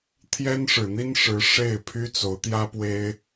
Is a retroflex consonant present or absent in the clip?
present